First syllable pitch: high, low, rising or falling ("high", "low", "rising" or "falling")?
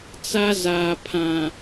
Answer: high